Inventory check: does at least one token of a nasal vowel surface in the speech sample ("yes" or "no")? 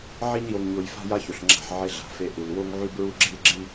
no